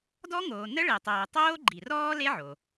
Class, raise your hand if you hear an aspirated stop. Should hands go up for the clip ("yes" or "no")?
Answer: no